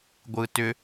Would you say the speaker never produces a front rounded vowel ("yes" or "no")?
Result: no